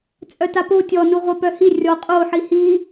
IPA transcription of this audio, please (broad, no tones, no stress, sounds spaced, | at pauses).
t͡sʼ œ t a p o tʲ ɔ n u ʁʷ ɛ p œ h i rʲ ɔ qʼ o ħ i h i